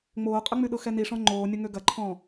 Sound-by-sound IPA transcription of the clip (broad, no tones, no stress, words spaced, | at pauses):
ŋ͡moːqʼəŋ͡myɗʊ xɛniʂɔ̃ ŋ͡ǃoːnʲʊ ŋøɡɐǃʰɔ̃ː